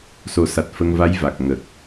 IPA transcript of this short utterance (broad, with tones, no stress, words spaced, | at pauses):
so˨˩˦sa˨˩t̚ fə˧ŋva˧˥jva˨˩k̚ ŋə˨˩k̚